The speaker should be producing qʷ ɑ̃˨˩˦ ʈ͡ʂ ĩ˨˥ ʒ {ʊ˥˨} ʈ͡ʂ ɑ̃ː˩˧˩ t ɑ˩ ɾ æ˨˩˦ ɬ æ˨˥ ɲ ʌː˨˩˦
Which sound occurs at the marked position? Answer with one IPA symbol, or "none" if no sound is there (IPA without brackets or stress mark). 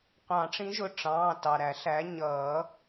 ʊ˩˧˩